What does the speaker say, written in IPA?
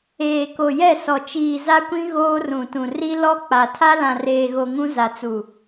eː˨ko˨jɛ˦˨ sɔ˨t͡ʃiː˨ za˦kʷĩ˦ ɣoː˦rũ˨tũ˨ ri˦ lɔ˦k͡pa˨ tʰa˦lã˨reː˨ɣo˨ ŋũ˦za˨t͡su˨

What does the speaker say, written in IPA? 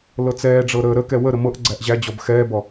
lɤt͡sɛːɖ͡ʐɤ ɾəːɾəkɛ wə ɾəmɤʔɡ͡ǀæʔ ʑæd͡ʑɔb xɛːbɔ

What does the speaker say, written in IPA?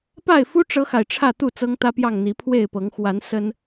pa˥˨ɪ̯fu˦ ʈ͡ʂɤ˦xa˨ɪ̯ʈ͡ʂʰä˥˨t̪u˥˨ t͡sɤ˦ŋt̪ä˦pjɑ˥˨ŋ n̪i˨˦pʰwe˥˨ɪ̯pɤ˨˦ŋ xwa˨˦n sə˦n

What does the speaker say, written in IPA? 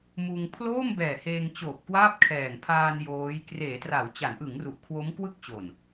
muː˧ŋ pʰloː˥˩mbɛː˨˩ heː˧ŋ t͡ɕoː˨˩p̚ kwaː˥˩p̚kʰɛː˨˩ŋ pʰaː˧n joː˦˥j kreː˩˦tra˩˦wt͡ɕa˩˦nʔɯ˩˦ŋ ru˨˩ʔkʰwo˦˥mkwɯ˥˩k̚t͡ɕo˨˩n

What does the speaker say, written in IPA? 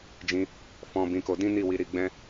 d͡ʒĩ˧ | fɔ̃˧bĩ˧ko˧ dĩ˦ni˦˨wi˧ ɾi˧ɡ͡bɛ̃˦

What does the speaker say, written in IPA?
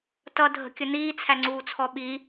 tʌ dʱə̤kʲəniː t͡sʰæŋ͡ǀuːt͡sʰɔɓi

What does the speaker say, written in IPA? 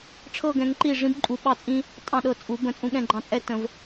ʈ͡ʂʰɤ˥˧ɡɛ̃˨˦ŋǃi˥˩ ʐĩ˥bǃʼu˨˦ɓɑ˥˩t͡sʼĩ˥ | tʼɑ̃˥˩ɗɤ˥˩ t͡sʼu˨˩˦ bə̃˧˩ t͡sʼũ˥˩ɠɛ̃˥˧ɡ͡ǃɑ̃˧˩t͡sʼɛ˥˧ tə̃˨˩˦v

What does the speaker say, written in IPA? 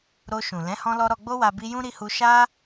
ɾo˧ʃũ˨ lɛ̃˨˦hɔ̃˧lɔ˧ ɾɔ˧ɡ͡bo˦wa˧ bi˧jũ˦ɾi˧hu˧ ʃa˦

